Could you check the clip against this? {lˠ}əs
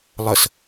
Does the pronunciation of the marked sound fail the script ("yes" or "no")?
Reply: no